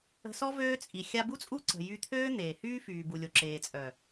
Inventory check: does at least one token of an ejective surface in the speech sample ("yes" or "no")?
yes